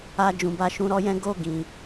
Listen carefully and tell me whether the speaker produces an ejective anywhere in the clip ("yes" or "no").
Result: no